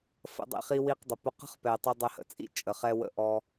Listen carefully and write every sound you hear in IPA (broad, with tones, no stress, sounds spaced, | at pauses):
f ə̰˧ dˤ ḭ˧ χ i˧ w i˧ q dˤ ɘ˨ p ʊ˧ q ə̤˦ χ p ɛ˨ tˤ ʊ˧ dˤ ɛ˧ h ə̰˨ t͡sʼ ḭ˦ t͡ʃʼ ə˨ χ ɛ˧ w ə̰˧ ʔ ɔ˧